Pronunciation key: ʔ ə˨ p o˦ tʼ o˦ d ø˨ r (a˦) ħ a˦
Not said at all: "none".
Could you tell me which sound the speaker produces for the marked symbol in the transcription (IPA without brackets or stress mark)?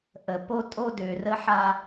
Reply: ə˦